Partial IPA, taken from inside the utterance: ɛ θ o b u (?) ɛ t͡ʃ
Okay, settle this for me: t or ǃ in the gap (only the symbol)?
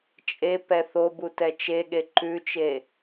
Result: t